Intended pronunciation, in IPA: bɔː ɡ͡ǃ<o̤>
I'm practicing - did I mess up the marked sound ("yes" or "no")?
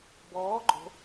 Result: no